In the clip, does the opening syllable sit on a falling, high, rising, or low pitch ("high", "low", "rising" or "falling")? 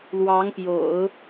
rising